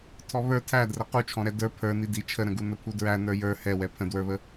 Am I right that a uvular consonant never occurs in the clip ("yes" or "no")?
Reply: no